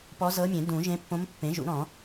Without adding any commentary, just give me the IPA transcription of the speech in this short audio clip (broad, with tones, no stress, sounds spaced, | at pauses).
p ɔ˧˥ z ɤ˧˥ mʲ ẽ˨˩˦ d ũ˨˩˦ ʒ ẽ˧˥ pː õ˧˥ m pː ẽ˩˥ ʒ ṵ˨˩˦ ɾ ɔ̃˨˩˦